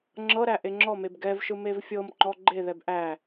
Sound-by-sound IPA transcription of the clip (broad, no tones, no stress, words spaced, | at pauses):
ŋ͡ǁɤɾæ ʔeŋ͡ǁɔmeb ɡɛvʃɯ mevfʲɤmŋ͡ǃɔ ɡ͡ǃeðɛb ʔæ